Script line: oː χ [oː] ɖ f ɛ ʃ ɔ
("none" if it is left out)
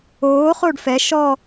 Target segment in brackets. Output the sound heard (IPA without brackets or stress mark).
o